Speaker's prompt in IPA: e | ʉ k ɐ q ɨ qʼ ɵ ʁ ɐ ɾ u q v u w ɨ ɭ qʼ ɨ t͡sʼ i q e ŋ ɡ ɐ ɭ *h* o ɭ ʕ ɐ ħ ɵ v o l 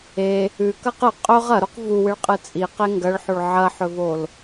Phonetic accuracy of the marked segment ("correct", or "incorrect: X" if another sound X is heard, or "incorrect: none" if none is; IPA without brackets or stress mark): incorrect: ħ